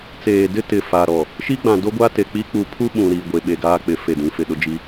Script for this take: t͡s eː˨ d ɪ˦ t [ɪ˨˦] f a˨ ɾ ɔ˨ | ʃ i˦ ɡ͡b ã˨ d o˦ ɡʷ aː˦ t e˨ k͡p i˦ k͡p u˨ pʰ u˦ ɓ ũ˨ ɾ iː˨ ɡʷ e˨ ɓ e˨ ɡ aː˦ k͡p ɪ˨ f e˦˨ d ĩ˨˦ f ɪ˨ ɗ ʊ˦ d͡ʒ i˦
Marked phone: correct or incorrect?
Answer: incorrect